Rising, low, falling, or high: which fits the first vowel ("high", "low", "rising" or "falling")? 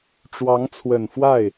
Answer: rising